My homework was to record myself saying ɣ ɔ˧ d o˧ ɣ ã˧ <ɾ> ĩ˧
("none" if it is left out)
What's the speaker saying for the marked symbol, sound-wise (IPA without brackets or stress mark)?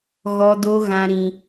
ɾ